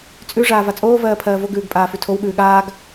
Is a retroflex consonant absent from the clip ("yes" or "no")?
no